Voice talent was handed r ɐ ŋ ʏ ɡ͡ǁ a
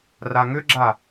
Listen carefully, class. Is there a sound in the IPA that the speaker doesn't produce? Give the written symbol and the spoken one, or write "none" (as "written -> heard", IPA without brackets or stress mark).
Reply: ɐ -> a